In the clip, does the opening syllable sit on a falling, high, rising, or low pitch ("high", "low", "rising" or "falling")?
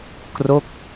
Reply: falling